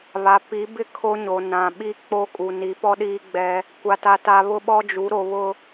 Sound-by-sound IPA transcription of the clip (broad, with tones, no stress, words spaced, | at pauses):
βa˨ pi˨˦bɪ˦ kʰo˦ɲo˨ nã˨ ɓi˦k͡po˦kʼu˨ni˨˦ pɔ˦ɗiː˦ɡ͡bɛ˦ | kʷa˦ta˦ta˦ βʊ˦ɓɔ˦d͡ʒu˨˦ ɾo˨βʊ˨